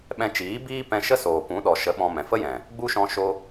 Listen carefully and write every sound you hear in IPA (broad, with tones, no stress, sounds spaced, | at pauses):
ɓ ɛ̃˧ t͡ʃ iː˨˦ b iː˦ p ɛ̃˧ ʃ ə˦ s oː˨ p ũ˨˦ ɗ ɔ˨ ʃ ə˨˦ ɓ ɔ̃˧ m ɛ̃˨ f ə˦ j ɛ̃˨ | ɡ͡b u˦ ʃ ɔ̃˧ ʃ o˧